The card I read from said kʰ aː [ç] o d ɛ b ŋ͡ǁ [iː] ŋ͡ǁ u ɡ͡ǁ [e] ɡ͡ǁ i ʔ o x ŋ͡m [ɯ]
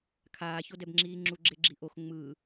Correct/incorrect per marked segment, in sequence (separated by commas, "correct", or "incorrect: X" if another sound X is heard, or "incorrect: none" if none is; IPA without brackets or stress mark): correct, correct, correct, correct